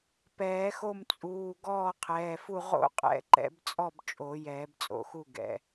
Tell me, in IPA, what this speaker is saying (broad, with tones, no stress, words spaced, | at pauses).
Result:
pɛː˨˩˦xo˥˨m t͡sʼuː˩˧˩ ɡɔː˥˨qʰɛː˩˧˩fu˥˨ ʁo̰˥˨qʼɛ̰˨˩˦ ǃɛ̰˨˩˦bt͡sʼɔ˥˨bt͡ʃʼo˨˩˦ jɛː˨˩˦bt͡sʼo̰˨˩˦xu˥˨ ɡɛ̰˩˧˩